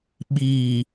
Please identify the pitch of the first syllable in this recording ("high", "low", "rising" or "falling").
low